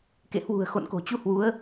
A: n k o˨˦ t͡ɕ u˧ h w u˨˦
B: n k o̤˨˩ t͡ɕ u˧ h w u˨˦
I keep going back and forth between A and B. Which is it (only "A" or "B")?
B